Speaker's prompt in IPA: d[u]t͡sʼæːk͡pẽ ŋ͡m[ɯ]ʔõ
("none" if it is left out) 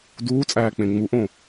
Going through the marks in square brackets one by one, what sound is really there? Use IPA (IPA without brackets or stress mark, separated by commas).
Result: uː, u